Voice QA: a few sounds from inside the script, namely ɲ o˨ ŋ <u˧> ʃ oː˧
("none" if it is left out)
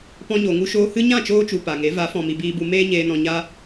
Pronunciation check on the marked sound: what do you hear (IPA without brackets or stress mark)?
u˧